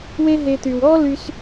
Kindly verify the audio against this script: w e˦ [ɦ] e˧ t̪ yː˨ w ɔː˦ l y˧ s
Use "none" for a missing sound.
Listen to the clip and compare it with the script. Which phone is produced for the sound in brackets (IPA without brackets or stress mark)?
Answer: ɦ